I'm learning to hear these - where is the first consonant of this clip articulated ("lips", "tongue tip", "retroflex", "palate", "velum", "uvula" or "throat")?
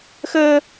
velum